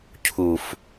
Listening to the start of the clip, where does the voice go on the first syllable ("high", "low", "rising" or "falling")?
low